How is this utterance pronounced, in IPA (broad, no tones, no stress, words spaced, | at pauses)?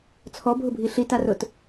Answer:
t͡sʰɔbʱʊbʱi ɬitarʊt